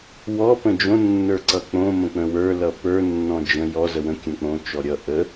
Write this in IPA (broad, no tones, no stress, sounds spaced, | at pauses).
w ɔ p ə̃ d͡ʒ õ nː ə˞ ǀ ʌ k͡p õ m ə̃ k͡p ə̃ w ə˞ l ʌ p ə˞ nː ɔ̃ d͡ʒ ə̃ j ɔ z ə w ə̃ kʲ ə̃ k͡p õ t͡ʃ ɔ ɾʲ ʌ ʔ ə